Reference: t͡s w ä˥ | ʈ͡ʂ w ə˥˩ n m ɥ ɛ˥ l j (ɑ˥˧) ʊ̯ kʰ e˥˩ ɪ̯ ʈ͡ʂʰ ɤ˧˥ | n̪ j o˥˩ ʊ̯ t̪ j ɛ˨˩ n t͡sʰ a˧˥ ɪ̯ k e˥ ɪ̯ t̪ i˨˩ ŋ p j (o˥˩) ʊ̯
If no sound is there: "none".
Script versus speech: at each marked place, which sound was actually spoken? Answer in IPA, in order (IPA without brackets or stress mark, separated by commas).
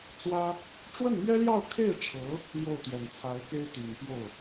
ɑ˥˧, o˥˩